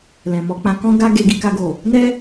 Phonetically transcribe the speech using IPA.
l ɛ̃˨ m ɔ˧ k͡p ã˧ k ɔ̃˦ ɡ a˦ ɡ e˧ ɡ i˧ k a˧ ɡ o˨ | n ɛ˦

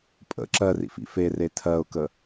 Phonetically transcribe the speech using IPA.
pʼ ə̰ ǁ ɜ r ḭ f ḭ f e r e tʰ ɜ ʊ̯ k ə

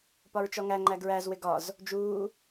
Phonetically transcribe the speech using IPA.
p ɒ ɹ t͡ʃ ɔ ŋ æ ŋ͡ǃ æ ɡ ɹ æ z w ɪ ɡ ɒ z | d͡ʒ uː

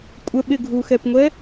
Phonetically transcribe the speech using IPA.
kʷʼ ə ɓ ɪ ɡʱ u x ɛ p ŋʷ ɛ

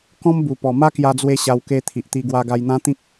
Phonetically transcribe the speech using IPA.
k ɔ̃˦ m b u˨˩ p ɔ˨˩ m a˦ k j a˧ d͡z w e˧ ɕ a˧ w k e˧ t̪ʰ i˨ ʔ t̪ i˧ ɡ w a˧ ɡ a˧ j n̪ ã˦ t̪ ĩ˦ k̚

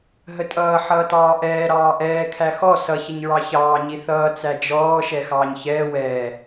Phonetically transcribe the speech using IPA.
ɦ ə tʼ ʌː ħ ʌː t ɑː ʔ ɛː ɾ ɑː ʔ ɛː kʰ æ x ɔ s ʌ ç ə ɲ ɹ ɑ ç ɑː ɲ i θ ʌː t͡s æ d͡ʒ ɔː ʃ ɛ x ɑː ɲ ç ɛː w ɛː

